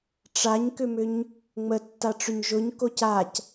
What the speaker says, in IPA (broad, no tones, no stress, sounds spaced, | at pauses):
ʈ͡ʂ a ɲ k ʏ m ʏ ɲ | ŋ͡m ə tː a ʈ͡ʂ ʏ ɲ ʒ ʊ ɲ k o c a c